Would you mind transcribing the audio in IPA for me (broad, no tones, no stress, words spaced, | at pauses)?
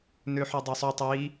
nøħœdˤøsˤœ tˤi